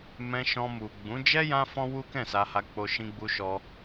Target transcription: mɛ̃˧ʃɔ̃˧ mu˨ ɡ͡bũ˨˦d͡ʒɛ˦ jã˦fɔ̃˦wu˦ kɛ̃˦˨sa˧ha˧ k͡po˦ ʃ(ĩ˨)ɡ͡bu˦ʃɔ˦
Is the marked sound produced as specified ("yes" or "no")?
no